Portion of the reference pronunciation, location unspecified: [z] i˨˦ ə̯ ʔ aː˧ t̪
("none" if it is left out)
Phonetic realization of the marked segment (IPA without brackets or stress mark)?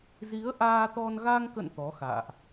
z